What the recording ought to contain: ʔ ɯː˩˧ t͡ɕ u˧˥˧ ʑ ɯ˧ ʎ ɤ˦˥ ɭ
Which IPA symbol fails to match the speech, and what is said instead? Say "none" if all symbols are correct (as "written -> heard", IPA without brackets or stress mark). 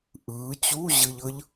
ɭ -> ʎ